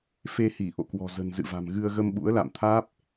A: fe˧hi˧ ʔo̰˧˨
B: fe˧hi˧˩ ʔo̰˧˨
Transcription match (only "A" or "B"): B